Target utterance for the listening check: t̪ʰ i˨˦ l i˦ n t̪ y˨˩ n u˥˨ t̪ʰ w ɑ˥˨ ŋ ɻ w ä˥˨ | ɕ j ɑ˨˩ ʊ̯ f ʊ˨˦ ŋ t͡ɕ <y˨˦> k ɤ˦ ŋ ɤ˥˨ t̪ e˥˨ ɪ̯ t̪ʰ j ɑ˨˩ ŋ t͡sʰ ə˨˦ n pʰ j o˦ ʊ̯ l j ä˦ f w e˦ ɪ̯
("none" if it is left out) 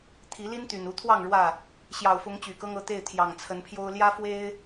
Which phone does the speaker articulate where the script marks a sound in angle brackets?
y˨˩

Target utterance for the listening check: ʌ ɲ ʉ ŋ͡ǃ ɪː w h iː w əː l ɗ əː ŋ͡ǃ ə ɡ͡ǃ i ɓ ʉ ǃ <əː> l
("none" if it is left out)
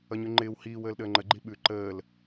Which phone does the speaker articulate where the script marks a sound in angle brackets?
əː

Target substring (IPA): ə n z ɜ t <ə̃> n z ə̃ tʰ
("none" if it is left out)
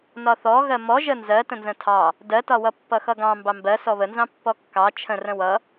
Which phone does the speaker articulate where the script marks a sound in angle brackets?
ə̃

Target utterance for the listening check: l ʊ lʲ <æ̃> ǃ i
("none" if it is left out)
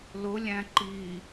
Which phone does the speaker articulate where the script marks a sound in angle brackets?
æ̃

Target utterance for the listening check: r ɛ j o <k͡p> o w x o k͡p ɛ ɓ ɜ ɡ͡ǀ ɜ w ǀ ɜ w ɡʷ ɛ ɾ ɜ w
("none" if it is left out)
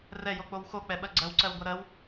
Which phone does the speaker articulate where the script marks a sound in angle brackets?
k͡p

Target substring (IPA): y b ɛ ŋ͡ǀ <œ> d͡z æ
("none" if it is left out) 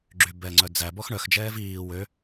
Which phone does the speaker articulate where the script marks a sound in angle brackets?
œ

